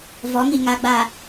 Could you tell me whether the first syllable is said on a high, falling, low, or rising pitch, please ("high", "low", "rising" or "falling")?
rising